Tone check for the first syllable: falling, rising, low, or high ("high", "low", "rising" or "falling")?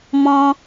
high